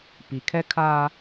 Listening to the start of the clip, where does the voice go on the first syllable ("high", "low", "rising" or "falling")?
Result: low